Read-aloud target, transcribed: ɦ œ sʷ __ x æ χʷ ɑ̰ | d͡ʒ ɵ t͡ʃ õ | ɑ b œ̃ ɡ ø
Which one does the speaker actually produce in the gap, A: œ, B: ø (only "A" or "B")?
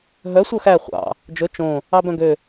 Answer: A